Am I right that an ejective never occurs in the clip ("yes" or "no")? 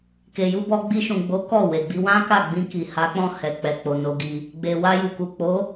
yes